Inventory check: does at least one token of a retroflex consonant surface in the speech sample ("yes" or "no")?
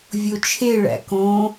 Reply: yes